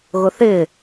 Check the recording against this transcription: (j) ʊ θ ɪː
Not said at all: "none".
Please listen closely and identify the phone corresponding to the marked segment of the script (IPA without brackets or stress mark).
ɣ